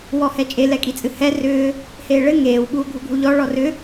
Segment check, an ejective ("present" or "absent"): present